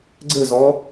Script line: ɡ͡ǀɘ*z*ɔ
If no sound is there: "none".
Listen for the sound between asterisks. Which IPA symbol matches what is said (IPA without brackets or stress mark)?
z